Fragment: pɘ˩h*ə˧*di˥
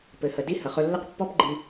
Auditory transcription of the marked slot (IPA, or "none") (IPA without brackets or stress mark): ə˩